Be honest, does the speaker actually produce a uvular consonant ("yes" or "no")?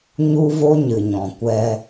no